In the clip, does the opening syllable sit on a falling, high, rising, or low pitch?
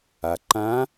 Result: low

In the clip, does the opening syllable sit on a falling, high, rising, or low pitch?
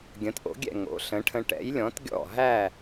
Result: rising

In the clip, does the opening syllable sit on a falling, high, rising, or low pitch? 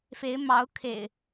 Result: rising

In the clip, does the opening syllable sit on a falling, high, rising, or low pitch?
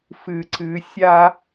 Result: low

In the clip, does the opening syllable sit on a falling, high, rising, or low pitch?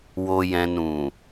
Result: low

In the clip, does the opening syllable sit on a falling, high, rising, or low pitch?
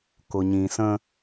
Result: low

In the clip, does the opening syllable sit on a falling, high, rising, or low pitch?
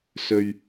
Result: low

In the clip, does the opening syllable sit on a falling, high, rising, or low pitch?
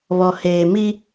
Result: low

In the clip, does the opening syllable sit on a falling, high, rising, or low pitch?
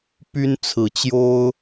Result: high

